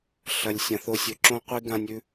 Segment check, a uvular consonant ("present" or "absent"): present